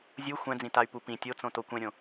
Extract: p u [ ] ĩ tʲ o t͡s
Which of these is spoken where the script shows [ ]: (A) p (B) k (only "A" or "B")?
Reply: A